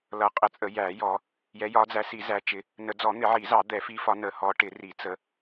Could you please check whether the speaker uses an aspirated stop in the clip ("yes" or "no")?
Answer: no